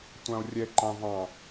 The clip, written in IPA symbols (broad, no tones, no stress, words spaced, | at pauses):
tʷão̯rʲɛǃɑ̃ vɑ̃